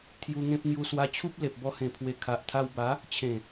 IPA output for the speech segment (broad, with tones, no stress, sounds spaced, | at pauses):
t̪ʰ j u˧ ŋ ẽ˦ p̚ ŋ j u˧ s w a˧ t͡ɕʰ u˦ p̚ l e˨ p̚ b ɔ˧ h ẽ˨˩ pʰ w e˨˩ kʰ a˨ ʔ t̪ʰ a˧ w b a˨˦ | t͡ɕʰ ẽ˨˩